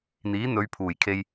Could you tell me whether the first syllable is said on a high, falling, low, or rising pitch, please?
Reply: rising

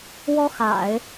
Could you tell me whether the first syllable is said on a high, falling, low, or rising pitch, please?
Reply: high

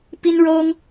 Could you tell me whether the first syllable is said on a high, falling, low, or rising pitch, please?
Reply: high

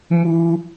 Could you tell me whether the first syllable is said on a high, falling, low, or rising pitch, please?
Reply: high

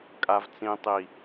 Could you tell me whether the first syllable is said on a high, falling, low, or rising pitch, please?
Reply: low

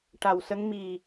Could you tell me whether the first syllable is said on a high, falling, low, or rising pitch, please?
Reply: low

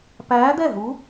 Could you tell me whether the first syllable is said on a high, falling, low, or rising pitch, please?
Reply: rising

